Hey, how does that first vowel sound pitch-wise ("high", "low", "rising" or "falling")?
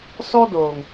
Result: high